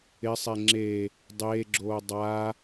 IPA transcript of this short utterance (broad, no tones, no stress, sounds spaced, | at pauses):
ɪ sˤ e ŋ͡ǁ e | dˤ eː ɡ͡ǁ oː dˤ a